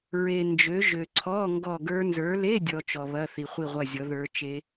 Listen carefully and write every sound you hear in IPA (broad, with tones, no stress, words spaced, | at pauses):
ɹe˨nd͡ʒø˨˦ ʒø˨ǀʰɔ˧˥˧ ŋɡɔ˦˨ɡə˞˦˥ nzə˞˨˦le˧˥˧dʲɔ˨ t͡ʃɔ˨βɐ˧˥˧ θi˨χʷi˦˨ʁʷɐ˦˨zʲɔ˨˦ ðə˞˦˥t͡ʃe˦˥